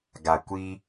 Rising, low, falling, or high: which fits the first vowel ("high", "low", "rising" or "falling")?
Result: low